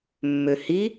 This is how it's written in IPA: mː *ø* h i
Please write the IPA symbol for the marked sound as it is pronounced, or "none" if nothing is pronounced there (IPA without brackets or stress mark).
ø